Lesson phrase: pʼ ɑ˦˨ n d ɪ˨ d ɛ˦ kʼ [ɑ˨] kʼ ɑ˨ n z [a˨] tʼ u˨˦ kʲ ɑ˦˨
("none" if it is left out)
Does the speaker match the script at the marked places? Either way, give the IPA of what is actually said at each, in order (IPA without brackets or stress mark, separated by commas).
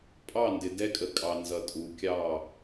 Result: ə˨, ʌ˨